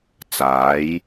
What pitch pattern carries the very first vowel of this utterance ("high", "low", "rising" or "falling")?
rising